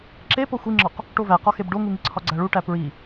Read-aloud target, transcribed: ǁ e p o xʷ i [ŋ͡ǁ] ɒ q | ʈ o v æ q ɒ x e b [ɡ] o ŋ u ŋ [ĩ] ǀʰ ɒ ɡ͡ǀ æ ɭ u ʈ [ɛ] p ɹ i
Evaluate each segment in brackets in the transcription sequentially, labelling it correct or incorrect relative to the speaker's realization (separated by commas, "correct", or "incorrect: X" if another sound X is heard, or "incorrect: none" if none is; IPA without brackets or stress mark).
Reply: correct, incorrect: ɖ, incorrect: i, incorrect: æ